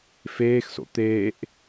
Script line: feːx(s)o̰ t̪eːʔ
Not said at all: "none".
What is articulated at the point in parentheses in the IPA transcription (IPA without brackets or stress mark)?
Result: s